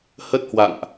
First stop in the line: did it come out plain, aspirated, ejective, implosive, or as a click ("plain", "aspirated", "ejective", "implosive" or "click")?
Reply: plain